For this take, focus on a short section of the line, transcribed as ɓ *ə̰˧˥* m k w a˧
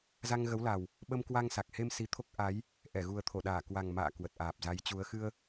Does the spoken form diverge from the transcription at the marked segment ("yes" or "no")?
yes